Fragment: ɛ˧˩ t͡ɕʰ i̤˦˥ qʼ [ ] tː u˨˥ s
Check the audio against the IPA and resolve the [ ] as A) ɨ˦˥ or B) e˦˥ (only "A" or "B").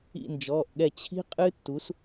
A